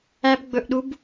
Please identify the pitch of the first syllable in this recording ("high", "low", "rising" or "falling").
high